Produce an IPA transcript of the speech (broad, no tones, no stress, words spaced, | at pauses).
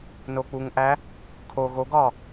nok͡puŋʔæ | kʰo ɣoɡɒ